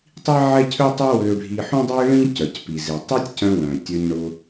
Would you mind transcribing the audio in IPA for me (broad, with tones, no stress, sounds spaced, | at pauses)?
tˤ i˥ ʕ ɛ˥ cʰ ø˥ tˤ œ˥ w ø˧ ɖʱ i˧ ħ ũ˥ dˤ u˥ ɪ̯ ɭ ĩ˥ c œ˩ c p i˩ z i˩ tˤ ɛ˥ tʲ c œ̃˧ w œ̃˩ tʲ ø˧ ɲ ɳ ʊ˧